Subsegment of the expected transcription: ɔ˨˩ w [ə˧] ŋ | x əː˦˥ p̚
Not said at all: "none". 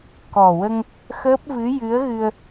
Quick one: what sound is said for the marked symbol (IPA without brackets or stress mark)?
ə˧